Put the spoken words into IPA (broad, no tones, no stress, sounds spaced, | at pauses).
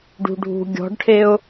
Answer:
ɖ ṳ ɖʱ ṳ ɡʲ ɔ̤ ɖ ʈʰ e ʊ̯